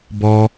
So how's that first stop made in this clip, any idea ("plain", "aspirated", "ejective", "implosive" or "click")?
plain